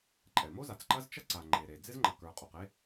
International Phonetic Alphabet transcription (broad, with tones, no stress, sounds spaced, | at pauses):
ǃʼ ɛ˩ m o˥ z a˩ t͡s ǃ ɐ˥ z t͡ʃ ɐ˥ ǀ a˩ ŋ͡ǃ e˩ ɾ e˩ d͡z ɪ˥ z ŋ͡ǃ ɐ˩ k ə˞˩ qʼ o˩ q e˥